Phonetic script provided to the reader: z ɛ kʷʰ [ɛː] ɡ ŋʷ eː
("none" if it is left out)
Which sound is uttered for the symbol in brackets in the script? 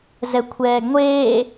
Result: ɛː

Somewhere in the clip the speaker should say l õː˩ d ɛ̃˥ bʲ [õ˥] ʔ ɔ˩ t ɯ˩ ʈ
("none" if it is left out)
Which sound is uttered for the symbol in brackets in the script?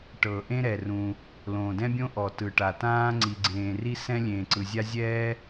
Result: õ˥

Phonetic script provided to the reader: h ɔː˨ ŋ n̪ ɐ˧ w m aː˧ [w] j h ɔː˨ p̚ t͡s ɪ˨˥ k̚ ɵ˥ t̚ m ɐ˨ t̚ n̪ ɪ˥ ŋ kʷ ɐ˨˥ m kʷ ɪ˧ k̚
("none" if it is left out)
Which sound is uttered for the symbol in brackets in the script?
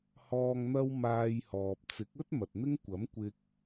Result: none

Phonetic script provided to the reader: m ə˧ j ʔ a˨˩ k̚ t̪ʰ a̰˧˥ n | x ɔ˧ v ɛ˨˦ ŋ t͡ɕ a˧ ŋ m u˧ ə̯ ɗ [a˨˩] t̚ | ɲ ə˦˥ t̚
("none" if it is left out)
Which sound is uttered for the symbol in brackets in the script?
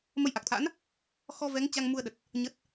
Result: ə˨˩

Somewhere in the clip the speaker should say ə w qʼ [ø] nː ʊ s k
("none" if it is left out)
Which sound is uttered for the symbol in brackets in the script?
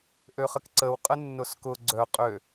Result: ə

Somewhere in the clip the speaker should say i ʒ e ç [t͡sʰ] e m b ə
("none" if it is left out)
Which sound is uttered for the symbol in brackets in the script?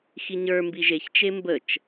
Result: t͡ʃ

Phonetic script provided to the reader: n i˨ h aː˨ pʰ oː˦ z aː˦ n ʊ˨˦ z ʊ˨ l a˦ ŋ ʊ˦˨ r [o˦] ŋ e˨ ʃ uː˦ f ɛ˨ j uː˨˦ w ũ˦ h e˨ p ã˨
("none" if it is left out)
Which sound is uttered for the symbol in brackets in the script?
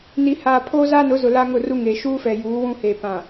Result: u˦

